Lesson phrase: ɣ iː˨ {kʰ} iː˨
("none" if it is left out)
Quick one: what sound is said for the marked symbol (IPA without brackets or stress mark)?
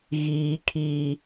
kʰ